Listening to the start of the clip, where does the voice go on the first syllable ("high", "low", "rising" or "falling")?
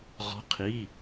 rising